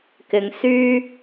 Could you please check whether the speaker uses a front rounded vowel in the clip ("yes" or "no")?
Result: yes